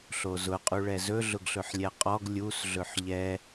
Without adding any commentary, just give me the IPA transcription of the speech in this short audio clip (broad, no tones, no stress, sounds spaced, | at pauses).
ɬ o z ʊ qʼ u ɭ ɛ z ɵ ɮ ʊ ɡ ɬ ɵ ħ lʲ ɛ qʼ ɔ ɡ lʲ u s ɮ ɵ ħ ʎ ɛ